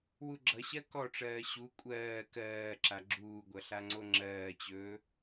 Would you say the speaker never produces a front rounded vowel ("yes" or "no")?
yes